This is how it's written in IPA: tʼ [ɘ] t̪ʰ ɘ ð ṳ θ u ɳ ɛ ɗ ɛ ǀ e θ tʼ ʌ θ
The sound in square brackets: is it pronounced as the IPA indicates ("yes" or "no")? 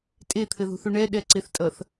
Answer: no